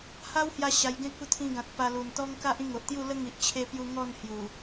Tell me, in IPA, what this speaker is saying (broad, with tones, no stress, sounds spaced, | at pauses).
h a˦ w h j a˧ ɕ a˧ j ɡ ẽ˦ k̚ u˥˧ t̪ʰ ĩ˧ ɡ ã˨ t̚ p a˧ l u˨˩ n t̪ ɔ˦ ŋ k a˦ ʔ ĩ˥˧ ŋ o˨ ʔ t̪ j u˥˧ l ə˦ ŋ i˨ ʔ t͡ɕʰ e˧ p j u˧ ŋ ɔ˥˧ n h j u˨˩